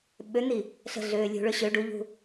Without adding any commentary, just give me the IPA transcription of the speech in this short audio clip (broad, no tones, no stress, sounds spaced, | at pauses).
ɓ ø n̪ i | ɬ ə̤ ɮ øː lʲ ṳ ɭ ø ɕ ø ɖ u ʎ ṳ